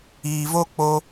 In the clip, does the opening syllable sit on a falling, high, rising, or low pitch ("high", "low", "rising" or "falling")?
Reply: low